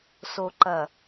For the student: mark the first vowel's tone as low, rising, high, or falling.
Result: low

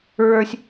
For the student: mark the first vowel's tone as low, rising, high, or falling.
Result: high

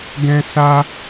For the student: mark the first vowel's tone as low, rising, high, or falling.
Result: high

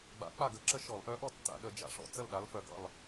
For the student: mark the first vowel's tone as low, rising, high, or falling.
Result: rising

